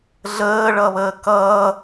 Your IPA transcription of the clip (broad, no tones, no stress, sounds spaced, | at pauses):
ɮ əː ɭ ʌ β əː k ʌː